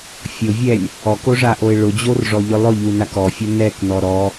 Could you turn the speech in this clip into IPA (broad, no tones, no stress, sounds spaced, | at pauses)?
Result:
fʲ ʊ vʲ ɛ lʲ | ɔ k o ʐ a ʔ o ɪ̯ ɭ ʊ d͡ʑ o r ʐ ɔ ʎ ʊ lˠ ʊ ʎ u n a k ɔ fʲ ʊ n ɛ k n ɔ ɾ ɔ